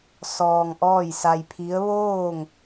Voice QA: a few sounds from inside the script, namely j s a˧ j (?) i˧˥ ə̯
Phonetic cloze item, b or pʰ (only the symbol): pʰ